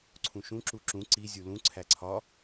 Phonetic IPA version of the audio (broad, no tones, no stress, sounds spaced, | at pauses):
ǀʰ ũ ʃ ũ ǁ u ǁ ũ ǀ i zʲ u l ũ ǀʰ æ ǀʰ ɒ